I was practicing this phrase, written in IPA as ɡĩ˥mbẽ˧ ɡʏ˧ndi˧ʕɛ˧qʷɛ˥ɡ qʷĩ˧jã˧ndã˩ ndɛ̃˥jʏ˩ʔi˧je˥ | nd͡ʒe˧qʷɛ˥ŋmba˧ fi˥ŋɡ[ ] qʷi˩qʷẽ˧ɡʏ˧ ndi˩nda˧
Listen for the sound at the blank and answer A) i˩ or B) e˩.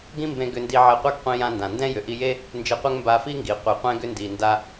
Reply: A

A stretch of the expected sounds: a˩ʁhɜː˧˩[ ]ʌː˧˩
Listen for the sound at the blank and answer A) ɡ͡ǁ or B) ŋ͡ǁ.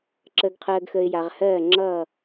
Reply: B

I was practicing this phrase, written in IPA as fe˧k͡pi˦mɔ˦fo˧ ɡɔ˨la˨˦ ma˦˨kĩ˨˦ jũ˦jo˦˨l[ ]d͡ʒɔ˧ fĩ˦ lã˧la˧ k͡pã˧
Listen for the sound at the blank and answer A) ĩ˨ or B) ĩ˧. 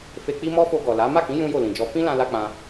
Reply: A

